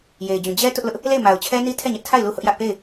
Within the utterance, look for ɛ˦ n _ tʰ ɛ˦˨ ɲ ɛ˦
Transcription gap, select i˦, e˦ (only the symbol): i˦